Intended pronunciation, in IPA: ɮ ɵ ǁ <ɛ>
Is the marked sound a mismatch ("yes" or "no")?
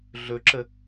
yes